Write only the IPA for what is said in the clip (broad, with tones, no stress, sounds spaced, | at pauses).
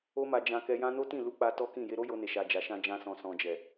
o˦ m a˧ d͡ʒ ã˧ k ɛ˧ j ã˦ n o˦ t ĩ˦˨ l u˧ k͡p a˧ t ɔ˦ k ĩ˦˨ j e˧ ɾ o˦ j o˧ n e˨ ʃ a˨ d͡ʒ a˨ ʃ ã˧ d͡ʒ ã˧ s ɔ̃˨ s ɔ̃˨ d͡ʒ ɛ˨